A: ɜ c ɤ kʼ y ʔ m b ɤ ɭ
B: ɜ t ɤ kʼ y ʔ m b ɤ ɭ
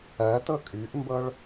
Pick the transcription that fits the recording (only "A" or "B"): B